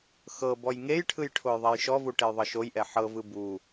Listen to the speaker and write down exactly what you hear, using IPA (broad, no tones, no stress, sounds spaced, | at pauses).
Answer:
x ɤ b ɔ j ŋ e j ʈʰ ɯ j ʈʰ o j ðˤ ɛ j ʃ ɔ v u ʈ e j ðˤ ɤ ʃ o j ʔ ɛ ħ ɤ v ɯ b u